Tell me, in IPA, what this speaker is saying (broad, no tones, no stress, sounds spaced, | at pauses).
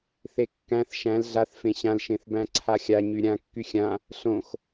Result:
θ e kː æ̃ θ ʃ æ̃ l ɮ a θ f ẽ ɕ ã l ʃ ẽ θ b æ̃ ǀʰ a xʲ a ɲ y ɾʲ ã kː y xʲ ã | ɬ õ x